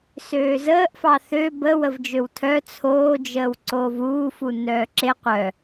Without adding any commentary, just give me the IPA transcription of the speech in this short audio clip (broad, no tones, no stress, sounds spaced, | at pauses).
s øː z əː ʔ f ɑ θ ø b ə w ə v d͡ʒ ø w tʰ œ t͡sʰ oː d͡ʒ əː w ǀ oː v uː f u nː œː ǁ e qʷ œ